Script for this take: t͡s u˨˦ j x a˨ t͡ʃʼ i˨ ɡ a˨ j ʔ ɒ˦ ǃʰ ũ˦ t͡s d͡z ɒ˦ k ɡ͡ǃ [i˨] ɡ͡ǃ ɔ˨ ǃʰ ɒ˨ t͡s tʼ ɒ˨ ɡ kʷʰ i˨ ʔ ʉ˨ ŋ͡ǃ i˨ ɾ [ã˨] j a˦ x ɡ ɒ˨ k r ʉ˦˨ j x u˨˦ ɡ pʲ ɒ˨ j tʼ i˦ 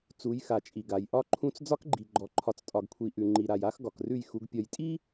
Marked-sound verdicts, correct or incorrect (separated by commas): correct, incorrect